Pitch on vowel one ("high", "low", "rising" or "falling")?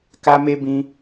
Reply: high